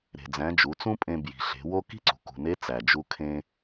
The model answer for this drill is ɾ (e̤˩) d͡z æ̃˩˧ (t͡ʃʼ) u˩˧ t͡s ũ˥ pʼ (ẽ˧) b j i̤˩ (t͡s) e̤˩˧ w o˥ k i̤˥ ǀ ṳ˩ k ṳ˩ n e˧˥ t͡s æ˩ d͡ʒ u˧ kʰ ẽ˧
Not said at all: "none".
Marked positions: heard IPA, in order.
e̤˩, d͡ʒ, ẽ˧, ɬ

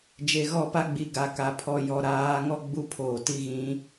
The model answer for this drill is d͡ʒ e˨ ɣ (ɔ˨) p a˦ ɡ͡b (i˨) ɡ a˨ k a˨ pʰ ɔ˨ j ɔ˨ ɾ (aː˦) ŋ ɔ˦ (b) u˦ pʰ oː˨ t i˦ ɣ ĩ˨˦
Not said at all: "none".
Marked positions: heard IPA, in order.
ɔ˦˨, i˨, aː˨˦, ɡ͡b

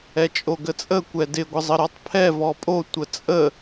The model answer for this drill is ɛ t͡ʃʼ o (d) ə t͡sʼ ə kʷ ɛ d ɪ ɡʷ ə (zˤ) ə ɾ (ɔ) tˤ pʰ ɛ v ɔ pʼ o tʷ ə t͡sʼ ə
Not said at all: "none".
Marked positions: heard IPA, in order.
ɡ, zˤ, ɔ

